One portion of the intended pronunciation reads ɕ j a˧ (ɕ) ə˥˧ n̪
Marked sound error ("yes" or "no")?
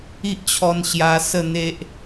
yes